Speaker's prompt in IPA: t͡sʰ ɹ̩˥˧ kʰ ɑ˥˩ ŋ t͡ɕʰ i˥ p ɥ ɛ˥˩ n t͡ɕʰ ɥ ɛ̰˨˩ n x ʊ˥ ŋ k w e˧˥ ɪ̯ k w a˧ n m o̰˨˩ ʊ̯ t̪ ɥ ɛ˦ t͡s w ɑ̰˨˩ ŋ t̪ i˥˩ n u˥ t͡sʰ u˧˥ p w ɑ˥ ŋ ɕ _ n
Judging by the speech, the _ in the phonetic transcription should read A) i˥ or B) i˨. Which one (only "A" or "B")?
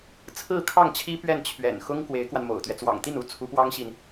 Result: B